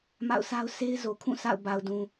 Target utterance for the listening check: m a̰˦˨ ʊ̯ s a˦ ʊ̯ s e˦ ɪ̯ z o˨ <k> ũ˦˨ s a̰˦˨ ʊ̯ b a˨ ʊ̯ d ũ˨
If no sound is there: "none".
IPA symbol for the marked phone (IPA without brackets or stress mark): kʰ